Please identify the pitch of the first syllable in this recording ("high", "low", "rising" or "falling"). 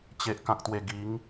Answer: low